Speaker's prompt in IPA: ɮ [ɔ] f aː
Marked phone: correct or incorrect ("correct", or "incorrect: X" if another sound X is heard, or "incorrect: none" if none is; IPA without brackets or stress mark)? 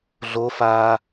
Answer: incorrect: o